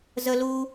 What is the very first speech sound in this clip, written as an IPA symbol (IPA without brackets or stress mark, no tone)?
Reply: z